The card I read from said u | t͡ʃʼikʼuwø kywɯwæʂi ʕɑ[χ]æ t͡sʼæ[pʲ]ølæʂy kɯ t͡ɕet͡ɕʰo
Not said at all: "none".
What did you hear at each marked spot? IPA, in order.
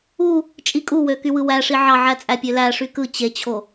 ʕ, pʲ

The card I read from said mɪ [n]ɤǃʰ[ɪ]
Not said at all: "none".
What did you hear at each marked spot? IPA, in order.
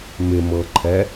m, ɛ

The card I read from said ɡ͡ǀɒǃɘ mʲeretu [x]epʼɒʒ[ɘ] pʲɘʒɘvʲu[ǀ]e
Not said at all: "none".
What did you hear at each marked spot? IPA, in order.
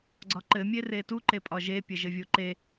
ǃ, e, ǃ

